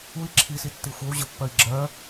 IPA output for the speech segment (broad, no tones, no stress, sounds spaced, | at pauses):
u i̯ ǁʰ i s i tː i xʷ ə˞ u̯ ʑ ə pː ɜ i̯ ɡ͡ǁ ɜ